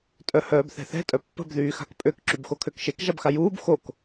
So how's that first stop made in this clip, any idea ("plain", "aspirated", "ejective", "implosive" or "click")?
ejective